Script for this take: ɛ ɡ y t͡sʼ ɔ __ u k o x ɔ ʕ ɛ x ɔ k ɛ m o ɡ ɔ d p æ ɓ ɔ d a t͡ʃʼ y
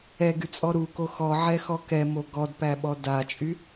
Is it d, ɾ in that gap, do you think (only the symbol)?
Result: ɾ